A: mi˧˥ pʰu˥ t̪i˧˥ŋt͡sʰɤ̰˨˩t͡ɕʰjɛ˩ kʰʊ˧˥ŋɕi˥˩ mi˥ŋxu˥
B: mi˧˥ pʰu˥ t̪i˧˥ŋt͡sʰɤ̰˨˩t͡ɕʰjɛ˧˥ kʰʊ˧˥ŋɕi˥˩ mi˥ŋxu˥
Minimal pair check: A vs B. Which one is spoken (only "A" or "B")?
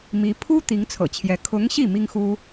B